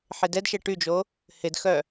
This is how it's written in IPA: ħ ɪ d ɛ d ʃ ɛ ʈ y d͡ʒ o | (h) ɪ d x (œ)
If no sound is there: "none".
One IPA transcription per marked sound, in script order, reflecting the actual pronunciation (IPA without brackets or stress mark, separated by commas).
h, œ